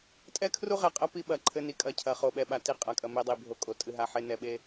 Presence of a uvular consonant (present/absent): present